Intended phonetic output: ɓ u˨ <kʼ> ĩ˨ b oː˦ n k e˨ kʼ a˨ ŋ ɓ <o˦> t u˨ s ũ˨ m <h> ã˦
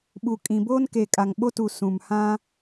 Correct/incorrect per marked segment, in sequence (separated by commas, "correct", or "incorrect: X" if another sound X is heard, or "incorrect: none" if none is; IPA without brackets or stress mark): correct, correct, correct